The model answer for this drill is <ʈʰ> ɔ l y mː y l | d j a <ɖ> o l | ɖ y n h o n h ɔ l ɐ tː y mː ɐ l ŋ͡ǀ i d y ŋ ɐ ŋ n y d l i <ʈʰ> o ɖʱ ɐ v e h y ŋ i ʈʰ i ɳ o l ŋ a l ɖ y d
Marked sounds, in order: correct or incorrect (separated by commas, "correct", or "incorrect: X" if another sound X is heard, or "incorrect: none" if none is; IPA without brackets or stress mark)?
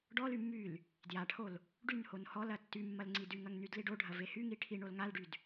incorrect: ɖ, incorrect: ʈʰ, incorrect: ɖ